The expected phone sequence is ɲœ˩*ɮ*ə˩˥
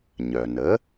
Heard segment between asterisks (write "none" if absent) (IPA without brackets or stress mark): n